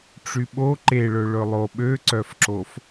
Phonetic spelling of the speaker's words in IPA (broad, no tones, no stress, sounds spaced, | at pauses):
ʈ͡ʂ y ɓ o ǃ e ɭ ɵ ɭ ɵ lˠ o ɓ ø ǀ œ f ǁ o f